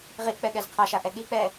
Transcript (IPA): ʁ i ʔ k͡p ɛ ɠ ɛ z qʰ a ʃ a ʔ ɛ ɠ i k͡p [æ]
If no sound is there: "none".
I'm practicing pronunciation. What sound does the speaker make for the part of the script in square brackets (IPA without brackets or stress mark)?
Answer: ɛ